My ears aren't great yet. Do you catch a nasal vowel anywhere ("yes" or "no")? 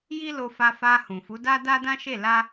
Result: yes